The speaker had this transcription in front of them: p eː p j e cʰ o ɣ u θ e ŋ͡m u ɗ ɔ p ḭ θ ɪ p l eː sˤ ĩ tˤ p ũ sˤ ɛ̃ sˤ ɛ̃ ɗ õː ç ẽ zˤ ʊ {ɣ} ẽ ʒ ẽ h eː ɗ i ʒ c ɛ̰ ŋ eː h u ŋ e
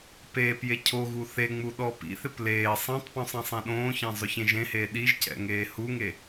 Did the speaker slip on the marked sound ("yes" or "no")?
yes